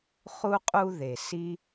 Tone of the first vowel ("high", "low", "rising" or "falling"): high